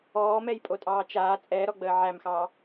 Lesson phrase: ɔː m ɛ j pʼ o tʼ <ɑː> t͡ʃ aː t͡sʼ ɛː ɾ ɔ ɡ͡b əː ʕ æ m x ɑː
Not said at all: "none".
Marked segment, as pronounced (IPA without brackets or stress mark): ɑː